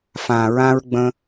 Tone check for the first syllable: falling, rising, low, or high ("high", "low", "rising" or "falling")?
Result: low